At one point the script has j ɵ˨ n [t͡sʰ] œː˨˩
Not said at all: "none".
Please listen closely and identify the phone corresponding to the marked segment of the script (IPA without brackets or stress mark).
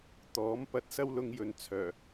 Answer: t͡sʰ